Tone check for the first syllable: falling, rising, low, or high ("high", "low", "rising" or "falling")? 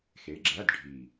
rising